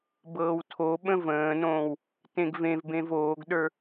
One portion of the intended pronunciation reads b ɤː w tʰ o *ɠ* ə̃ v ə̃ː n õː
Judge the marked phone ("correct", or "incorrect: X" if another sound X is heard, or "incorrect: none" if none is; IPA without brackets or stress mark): incorrect: ɓ